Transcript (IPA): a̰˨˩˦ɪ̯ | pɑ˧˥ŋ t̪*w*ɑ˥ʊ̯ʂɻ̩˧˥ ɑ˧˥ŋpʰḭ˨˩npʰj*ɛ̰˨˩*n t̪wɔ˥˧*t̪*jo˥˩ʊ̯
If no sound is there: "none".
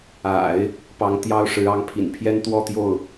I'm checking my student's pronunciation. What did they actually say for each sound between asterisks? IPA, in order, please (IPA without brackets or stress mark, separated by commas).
j, ɛ˥, t̪